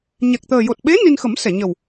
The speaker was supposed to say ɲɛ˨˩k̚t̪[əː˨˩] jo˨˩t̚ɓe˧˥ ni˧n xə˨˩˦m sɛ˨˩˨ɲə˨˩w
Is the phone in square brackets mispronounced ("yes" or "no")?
no